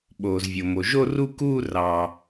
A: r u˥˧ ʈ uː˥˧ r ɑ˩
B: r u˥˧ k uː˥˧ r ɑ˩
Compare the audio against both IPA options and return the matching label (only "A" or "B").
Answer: B